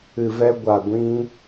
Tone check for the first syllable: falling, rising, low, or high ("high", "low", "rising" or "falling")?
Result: low